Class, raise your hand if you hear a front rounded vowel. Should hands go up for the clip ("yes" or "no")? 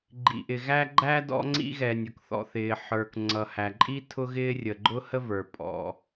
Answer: no